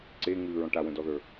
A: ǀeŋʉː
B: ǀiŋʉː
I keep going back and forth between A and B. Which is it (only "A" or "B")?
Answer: A